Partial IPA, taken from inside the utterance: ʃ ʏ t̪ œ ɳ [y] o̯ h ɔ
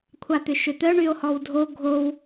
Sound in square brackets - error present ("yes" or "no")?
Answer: no